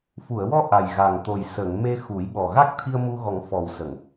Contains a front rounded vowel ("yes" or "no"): no